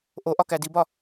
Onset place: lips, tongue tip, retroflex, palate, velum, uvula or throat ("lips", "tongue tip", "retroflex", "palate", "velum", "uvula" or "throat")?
throat